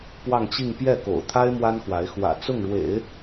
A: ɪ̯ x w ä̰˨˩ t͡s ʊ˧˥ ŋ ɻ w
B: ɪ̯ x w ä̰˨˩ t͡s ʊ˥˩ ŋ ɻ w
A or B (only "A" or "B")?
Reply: B